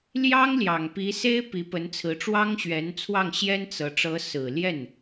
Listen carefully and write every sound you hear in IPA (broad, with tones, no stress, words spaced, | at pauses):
ljɑ˥ŋljɑ˨˩ŋpi˧˥ se˥ɪ̯pi˧˥ pə˧˥nt͡sʰɹ̩˧˥ʈ͡ʂwɑ˥ŋ ɕɥɛ˧˥nt͡sʰwɑ˥˩ŋɕjɛ˥n t͡sɤ˧˥ ʈ͡ʂɤ˧˥sɹ̩˨˩ ljɛ˥˩n